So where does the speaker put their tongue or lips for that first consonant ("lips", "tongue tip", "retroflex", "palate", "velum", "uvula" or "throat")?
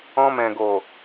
lips